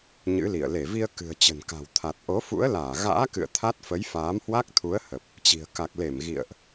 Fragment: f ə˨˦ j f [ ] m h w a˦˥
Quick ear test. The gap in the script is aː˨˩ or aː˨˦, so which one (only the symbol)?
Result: aː˨˦